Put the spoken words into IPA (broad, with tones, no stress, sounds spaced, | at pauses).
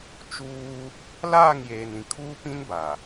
t͡ʃ uː˦ | l aː˦˨ ŋ j eː˨ n ĩ˨ kʰ uː˦ p ĩ˦ n b a˨